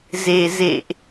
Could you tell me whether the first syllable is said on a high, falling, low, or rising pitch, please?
low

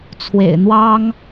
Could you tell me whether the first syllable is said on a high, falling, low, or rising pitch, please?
low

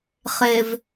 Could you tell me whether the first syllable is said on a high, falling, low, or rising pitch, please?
low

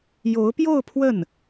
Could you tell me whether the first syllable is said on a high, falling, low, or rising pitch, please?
rising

